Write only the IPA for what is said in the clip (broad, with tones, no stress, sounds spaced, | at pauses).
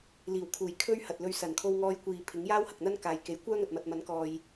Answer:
l iː˨˩ w kʰ uː˨˩ j kʰ ɵ˥ ɥ h ɐ˨ t̚ l ɵ˧ ɥ s ɐ˨˩ n kʰ o˧ w ŋ ɔː˧ j kʷ iː˨ pʰ ɪ˨˥ ŋ j aː˥ w h ɐ˨ k̚ n̪ ɐ˥ n k aː˨ j k e˨˥ j kʷ œː˥ ŋ ɐ˨ t̚ m ɐ˨ t̚ m ɐ˨˥ n k ɔː˨ j